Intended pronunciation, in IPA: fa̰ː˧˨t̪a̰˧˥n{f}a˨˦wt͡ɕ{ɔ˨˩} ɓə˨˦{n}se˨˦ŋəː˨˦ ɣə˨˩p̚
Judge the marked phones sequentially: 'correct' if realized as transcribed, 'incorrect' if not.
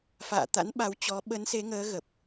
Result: incorrect: ɓ, incorrect: ɔ˨˦, correct

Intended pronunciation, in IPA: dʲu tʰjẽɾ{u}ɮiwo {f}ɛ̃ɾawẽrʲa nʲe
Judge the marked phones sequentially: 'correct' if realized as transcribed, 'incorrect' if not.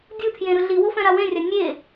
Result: incorrect: ɯ, correct

